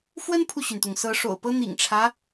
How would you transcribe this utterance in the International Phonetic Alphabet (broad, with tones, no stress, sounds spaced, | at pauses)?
f w ə˥ n pʰ u˨ ɕ y˩ n t̪ ʊ˩ ŋ s ɤ˧˥ ʂ o̰˨˩ ʊ̯ p ɤ˥ n̪ ḭ˨˩ ŋ ʈ͡ʂʰ ä˦